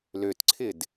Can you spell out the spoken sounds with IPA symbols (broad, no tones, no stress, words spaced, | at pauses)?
løtǀʰɪd